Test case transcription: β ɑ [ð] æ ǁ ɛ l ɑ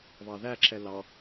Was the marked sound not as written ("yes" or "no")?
no